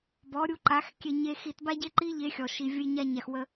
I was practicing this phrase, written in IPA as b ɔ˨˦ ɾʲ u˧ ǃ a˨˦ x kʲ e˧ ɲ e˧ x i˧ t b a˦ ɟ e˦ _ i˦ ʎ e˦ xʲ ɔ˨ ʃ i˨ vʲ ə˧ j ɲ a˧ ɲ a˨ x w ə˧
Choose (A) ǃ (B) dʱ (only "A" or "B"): A